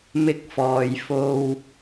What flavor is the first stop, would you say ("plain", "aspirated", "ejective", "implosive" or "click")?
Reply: plain